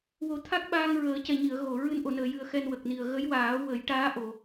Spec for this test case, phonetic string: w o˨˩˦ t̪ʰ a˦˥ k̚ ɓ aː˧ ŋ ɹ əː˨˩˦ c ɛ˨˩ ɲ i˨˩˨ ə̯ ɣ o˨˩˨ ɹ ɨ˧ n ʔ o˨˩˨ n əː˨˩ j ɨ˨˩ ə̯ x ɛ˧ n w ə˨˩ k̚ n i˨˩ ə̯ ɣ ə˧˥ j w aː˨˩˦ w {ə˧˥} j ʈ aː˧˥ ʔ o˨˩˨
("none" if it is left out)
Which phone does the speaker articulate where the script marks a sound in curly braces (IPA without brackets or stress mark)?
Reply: ə˨˩˦